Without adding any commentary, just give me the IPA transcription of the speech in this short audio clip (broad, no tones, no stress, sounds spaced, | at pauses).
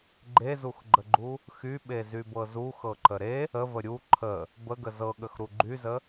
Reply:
ɡ͡ǃ e z u x ɡ͡ǃ ə ɡ͡ǃ u | x y ɓ e z y b ɤ z u x ɤ ǃ ə ɾ e | ə v ə ɾʲ u ǃʰ ə | b ə ɡ ə z ɤ ɠ ə x ɾ u ɡ͡ǃ y z ə